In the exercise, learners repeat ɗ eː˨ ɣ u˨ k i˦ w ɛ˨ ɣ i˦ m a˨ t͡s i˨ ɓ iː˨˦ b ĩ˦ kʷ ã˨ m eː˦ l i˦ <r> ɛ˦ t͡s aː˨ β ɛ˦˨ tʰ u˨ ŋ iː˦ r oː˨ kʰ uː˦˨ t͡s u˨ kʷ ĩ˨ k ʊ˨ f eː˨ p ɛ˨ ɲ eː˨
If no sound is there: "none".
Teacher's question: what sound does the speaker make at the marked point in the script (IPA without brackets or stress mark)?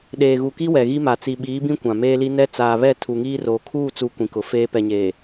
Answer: n